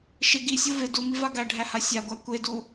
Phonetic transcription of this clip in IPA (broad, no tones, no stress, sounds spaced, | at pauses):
ʃ ɪ ɡ i sʲ o v ɪ d u m i v a ɡ æ ɖʱ æ h a sʲ a ɡʷ æ kʷ e d u